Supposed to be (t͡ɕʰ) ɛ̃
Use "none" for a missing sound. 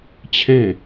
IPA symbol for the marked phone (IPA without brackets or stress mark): t͡ɕʰ